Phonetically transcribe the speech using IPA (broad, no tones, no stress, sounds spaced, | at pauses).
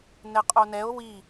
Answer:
n ɛ qʼ o n ɛ o̯ w i